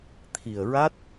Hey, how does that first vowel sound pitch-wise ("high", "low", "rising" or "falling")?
low